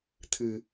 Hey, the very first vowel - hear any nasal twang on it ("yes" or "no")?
no